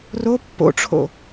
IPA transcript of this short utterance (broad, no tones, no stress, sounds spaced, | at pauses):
r o pː o̰ ʈ͡ʂʰ o̰